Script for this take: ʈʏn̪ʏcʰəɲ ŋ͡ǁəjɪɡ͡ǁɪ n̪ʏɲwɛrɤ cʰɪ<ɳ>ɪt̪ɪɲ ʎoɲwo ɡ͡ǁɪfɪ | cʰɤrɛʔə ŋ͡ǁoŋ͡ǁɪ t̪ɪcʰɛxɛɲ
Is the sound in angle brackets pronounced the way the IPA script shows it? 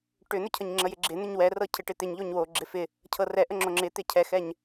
no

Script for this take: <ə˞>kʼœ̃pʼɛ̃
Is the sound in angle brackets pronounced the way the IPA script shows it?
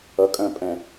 no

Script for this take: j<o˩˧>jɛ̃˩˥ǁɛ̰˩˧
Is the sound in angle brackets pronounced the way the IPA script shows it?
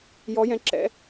no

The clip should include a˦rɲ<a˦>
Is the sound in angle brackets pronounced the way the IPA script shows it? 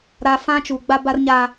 yes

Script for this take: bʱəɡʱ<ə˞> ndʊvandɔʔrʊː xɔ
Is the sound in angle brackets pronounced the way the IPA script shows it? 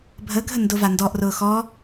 no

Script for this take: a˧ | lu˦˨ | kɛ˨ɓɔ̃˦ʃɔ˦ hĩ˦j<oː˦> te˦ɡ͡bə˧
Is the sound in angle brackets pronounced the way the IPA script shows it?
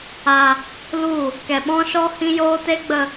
yes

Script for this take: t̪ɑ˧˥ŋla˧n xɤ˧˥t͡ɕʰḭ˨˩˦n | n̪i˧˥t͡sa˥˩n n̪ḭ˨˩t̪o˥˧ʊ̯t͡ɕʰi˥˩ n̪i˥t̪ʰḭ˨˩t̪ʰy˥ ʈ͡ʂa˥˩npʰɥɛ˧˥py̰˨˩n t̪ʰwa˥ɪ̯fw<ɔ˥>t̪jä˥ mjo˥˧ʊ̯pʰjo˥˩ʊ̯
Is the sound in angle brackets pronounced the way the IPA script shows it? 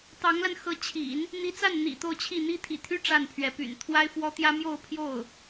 yes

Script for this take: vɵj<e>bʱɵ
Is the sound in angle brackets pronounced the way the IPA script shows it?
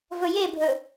yes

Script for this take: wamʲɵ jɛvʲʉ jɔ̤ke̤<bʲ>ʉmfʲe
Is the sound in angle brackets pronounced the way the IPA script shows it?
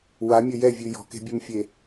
yes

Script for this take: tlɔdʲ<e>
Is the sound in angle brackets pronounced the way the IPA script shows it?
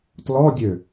no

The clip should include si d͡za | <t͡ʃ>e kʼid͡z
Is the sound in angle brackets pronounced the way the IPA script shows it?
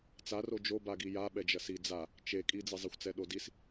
yes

